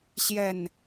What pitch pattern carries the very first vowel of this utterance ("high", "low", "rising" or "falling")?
falling